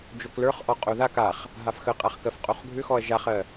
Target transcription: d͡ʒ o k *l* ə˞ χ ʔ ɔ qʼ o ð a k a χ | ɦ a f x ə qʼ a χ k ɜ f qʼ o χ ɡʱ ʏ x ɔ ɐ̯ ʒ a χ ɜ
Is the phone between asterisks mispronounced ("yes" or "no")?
no